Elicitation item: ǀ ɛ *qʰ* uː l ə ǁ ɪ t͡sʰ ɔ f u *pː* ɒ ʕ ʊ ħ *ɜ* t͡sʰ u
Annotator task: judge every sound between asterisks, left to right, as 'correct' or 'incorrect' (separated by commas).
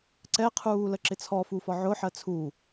correct, incorrect, correct